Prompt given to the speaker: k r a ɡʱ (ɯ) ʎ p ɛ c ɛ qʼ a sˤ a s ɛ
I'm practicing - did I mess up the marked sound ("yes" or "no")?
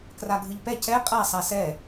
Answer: no